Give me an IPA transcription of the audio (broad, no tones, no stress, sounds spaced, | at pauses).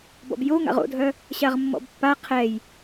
b ɔ̰ b j o ŋ a̰ ʁ o̰ dʱ œ | ɕ a ʁ mː ɔ̰ b pː a qʰ ɛ j